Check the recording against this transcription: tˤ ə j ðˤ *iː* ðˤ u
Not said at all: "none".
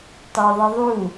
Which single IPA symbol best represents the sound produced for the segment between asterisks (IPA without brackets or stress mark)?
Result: i